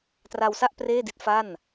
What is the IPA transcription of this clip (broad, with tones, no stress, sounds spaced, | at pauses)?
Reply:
t r a˧ w s a˥˩ ʔ p r eː˥˩ d i˦˥ t̚ f a˥˩ n